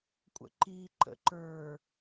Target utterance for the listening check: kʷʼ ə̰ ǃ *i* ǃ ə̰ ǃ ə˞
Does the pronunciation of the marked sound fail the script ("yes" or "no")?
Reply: no